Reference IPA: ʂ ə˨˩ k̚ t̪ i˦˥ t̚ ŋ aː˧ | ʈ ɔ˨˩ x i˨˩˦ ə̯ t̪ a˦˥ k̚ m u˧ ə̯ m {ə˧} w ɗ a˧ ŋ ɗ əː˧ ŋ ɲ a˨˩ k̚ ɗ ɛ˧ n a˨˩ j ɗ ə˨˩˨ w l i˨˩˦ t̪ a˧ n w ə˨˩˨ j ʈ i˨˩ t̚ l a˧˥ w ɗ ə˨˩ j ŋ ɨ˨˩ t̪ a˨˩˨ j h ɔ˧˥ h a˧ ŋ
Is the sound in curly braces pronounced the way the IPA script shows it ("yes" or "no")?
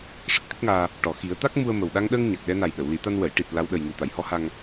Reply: no